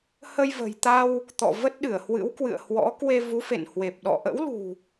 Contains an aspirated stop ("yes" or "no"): no